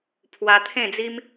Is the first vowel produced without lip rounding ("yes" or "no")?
yes